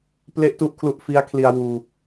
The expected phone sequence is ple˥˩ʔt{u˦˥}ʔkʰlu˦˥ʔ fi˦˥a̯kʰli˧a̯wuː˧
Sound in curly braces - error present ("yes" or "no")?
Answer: yes